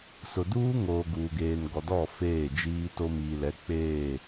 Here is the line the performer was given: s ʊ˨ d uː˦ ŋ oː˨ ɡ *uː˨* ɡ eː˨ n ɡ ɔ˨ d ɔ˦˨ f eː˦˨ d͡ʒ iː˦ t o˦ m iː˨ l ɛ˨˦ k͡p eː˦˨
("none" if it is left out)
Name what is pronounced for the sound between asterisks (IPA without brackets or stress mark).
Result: uː˨